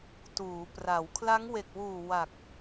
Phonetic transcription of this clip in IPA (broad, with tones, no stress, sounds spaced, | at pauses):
t uː˩˦ p r a˩˦ w kʰ l a˦˥ ŋ w e˨˩ k̚ w uː˨˩ w a˨˩ k̚